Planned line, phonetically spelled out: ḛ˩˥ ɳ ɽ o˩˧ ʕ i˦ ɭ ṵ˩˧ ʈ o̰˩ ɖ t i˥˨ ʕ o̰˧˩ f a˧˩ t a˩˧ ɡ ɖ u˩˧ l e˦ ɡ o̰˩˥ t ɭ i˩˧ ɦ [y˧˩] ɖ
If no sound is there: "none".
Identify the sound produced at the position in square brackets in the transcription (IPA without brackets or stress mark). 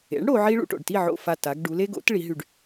y˧˩